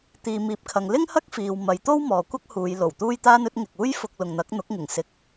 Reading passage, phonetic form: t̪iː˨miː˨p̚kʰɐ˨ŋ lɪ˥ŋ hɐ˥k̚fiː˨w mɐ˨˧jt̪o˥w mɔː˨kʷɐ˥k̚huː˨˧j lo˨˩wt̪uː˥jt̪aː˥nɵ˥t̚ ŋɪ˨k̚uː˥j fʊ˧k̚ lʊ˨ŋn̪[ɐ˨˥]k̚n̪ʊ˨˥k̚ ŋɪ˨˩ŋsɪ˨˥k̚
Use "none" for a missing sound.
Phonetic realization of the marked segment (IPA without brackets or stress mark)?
ɐ˨˥